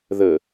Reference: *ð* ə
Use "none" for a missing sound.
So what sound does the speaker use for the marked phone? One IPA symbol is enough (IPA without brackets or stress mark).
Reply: ð